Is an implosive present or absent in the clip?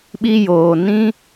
present